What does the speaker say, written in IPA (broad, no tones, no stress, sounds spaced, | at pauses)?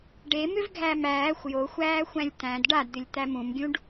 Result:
ɖ e m ʏ v ɡʱ æ m æː xʷ j o xʷ æː xʷ æ̃ lʲ t̪ æ̃ d ɖ a d d̪ ʏ lʲ t̪ æ m ũ m ɡʲ ũ ɖ